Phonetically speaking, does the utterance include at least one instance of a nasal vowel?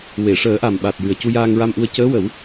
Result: no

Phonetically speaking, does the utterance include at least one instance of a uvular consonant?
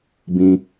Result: no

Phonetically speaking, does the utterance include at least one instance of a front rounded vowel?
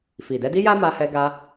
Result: no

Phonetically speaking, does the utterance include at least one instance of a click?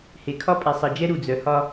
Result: no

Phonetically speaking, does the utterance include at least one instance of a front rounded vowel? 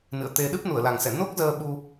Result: no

